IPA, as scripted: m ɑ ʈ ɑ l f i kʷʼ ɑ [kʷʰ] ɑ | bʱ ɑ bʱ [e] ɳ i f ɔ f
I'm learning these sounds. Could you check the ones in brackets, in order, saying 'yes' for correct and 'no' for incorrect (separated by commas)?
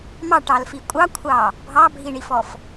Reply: yes, no